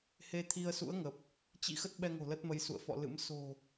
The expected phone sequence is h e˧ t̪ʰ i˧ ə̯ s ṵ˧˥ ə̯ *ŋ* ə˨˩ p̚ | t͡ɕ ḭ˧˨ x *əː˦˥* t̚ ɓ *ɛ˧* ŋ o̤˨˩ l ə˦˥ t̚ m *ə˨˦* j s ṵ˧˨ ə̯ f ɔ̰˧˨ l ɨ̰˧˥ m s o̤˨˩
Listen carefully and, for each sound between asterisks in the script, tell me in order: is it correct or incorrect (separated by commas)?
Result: correct, incorrect, correct, correct